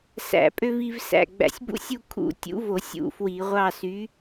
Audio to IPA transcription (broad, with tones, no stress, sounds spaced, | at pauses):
s æ̰˧˩˧ pʼ ø˦ v i˦ v s æ̰˩˧˩ ɡ͡b æ̰˧˩˧ sʲ b ṵ˦ sʲ u˦˨ kʰ ṵ˧˩˧ tʲ ṵ˨˥ v o˧˩˧ sʲ ṵ˧˩˧ f w i˧˩˧ ʁʷ ɑ˦˨ s y˨˥